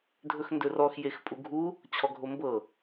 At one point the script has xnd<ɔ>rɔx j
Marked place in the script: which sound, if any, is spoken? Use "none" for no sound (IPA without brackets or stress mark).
ɵ